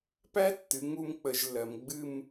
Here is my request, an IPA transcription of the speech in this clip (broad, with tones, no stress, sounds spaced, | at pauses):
p æ˦˥ tː ɨ˩˧ ŋ u˥˧ m k͡p ə˧˩˧ ʒ lː ɜ˩˧ m ɡ͡b ɨ˥˧ m